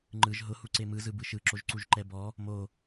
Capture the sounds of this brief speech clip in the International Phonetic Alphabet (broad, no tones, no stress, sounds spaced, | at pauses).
ŋ͡ǃ ɯ ʒ ɦ ʊ h u ǀ e m ɯ z ɯ b ɯ ʃ ɯ ǁ o ʒ ǀ u ʒ ǃ ɛ b ɔ | m o